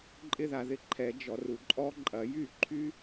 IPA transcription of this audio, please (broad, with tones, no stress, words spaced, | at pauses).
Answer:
ǃʼɪ˦˥ða˨ðɪ˥˧ ǃʰɛ˨˩˦ d͡ʒɔ˨ru˨ ǃʼɔ˦˥ǃʼɐ˨˩˦ jy˥˩ǃʰy˦˥